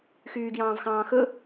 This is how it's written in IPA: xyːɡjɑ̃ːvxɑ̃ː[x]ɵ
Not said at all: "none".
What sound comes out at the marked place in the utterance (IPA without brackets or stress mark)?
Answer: x